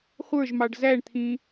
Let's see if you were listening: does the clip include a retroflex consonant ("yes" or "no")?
yes